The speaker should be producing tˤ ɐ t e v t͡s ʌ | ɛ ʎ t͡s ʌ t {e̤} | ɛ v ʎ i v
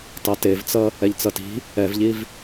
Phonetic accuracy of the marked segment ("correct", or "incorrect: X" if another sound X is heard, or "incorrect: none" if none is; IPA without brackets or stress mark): incorrect: i̤